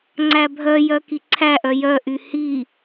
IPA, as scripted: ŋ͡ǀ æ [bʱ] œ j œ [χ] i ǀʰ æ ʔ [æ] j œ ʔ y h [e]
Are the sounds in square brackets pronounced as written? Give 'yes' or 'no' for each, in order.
yes, no, no, no

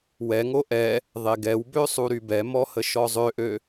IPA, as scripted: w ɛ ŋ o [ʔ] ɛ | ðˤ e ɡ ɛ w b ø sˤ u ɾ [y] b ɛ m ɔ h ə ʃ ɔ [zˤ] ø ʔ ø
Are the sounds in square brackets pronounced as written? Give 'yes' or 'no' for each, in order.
yes, yes, yes

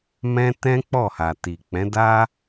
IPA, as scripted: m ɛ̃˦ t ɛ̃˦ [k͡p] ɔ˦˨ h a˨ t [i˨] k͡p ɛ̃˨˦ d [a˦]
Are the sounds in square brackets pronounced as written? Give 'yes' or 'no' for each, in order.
yes, yes, yes

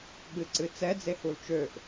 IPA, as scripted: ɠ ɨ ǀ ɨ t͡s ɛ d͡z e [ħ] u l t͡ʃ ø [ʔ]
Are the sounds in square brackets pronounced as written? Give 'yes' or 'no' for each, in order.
no, yes

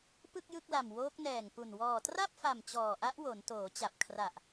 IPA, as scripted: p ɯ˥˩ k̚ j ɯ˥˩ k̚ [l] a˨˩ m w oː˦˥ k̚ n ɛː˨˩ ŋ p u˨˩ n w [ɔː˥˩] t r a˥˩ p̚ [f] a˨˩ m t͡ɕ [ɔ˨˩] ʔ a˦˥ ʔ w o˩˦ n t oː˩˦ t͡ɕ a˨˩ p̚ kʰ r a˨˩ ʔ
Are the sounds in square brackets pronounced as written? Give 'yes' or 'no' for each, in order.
yes, no, yes, no

